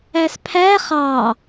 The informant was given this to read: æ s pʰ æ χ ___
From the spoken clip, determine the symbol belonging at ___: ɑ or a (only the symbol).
ɑ